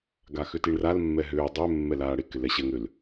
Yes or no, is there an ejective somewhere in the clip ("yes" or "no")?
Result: no